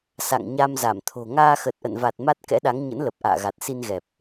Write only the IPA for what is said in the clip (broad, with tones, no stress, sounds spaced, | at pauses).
s a̰˧˨ ŋ ɲ a˧ m z a˧˩ m t̪ʰ o̤˨˩ ŋ aː˧ x ə˨˩ t̚ ʔ ə̰˧˨ n v a˨˩ t̚ m a˦˥ t̚ k ɛ̰˧˥ ɗ a˨˦ ŋ ɲ ə̰˧˥ n l ə˨˩ p̚ ʔ a̰ː˧˨ ɣ a˨˩ t̚ s i˧ n ɣ ɛ˨˩ p̚